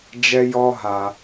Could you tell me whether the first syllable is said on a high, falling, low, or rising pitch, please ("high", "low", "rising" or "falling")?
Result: high